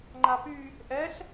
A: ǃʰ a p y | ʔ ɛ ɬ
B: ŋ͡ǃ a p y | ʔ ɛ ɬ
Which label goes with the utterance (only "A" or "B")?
B